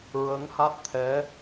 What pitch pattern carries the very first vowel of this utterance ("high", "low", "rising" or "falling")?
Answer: rising